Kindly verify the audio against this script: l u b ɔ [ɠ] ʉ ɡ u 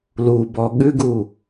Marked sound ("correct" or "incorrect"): correct